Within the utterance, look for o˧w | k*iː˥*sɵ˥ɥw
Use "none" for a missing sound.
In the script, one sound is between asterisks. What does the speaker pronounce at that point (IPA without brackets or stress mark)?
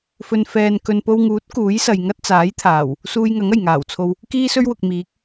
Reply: iː˥